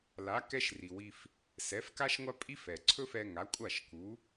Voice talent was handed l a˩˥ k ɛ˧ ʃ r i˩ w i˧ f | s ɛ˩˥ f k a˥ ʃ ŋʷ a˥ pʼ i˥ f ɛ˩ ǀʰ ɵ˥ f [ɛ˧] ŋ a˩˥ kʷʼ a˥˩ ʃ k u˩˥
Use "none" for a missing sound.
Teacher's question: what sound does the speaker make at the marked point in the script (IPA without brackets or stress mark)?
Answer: ɛ˧